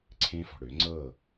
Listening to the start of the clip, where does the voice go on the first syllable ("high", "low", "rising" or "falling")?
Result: high